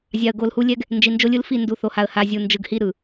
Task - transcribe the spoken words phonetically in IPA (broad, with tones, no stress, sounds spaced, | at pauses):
zʲ a˨ ə̯ ɡ o˨ l h u˦ lʲ ɛ˦ ɡ | n d͡ʒ i˨ n d͡ʒ o˦ lʲ ɯ˦ l f i˦˨ n d u˨ θ o˨ h a˨ ə̯ h a˨ zʲ u˨ n d͡ʒ ɯ˨ ɡ h i˦ ɾ ɯ˨